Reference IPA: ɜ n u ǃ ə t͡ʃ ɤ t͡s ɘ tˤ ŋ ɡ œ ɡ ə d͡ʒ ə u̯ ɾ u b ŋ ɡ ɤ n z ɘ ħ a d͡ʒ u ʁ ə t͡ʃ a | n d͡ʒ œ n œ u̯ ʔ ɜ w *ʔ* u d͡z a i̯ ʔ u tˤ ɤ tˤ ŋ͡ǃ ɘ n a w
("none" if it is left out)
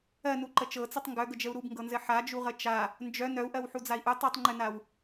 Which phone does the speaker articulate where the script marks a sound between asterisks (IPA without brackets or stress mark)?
ħ